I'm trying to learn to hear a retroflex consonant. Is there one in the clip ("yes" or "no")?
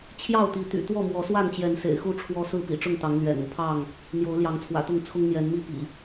yes